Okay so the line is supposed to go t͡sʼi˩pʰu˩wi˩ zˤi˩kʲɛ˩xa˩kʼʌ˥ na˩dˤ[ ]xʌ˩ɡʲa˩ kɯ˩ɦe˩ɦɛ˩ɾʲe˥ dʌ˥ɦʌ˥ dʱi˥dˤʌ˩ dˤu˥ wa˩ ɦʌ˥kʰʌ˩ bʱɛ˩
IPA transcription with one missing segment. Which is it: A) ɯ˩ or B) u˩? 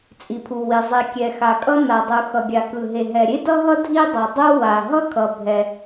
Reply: B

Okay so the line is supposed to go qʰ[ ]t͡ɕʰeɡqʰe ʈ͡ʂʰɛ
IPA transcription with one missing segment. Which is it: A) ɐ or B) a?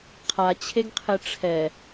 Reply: B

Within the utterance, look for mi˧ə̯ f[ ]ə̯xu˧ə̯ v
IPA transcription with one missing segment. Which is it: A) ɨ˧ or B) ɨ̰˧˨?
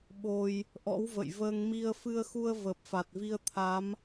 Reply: A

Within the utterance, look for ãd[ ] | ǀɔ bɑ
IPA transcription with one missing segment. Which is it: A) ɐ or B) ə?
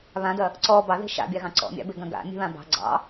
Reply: A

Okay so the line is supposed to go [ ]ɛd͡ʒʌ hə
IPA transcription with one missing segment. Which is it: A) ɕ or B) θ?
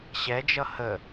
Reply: A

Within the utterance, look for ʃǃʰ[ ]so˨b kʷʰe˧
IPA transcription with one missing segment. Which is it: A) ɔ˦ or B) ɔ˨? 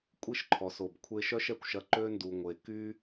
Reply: B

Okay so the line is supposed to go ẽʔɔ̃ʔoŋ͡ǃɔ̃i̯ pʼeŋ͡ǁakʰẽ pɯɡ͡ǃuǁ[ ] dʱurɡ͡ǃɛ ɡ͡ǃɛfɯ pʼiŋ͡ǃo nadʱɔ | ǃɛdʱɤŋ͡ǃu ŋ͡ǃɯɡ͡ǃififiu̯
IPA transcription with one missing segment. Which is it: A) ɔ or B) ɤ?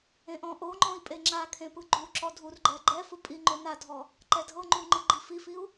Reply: A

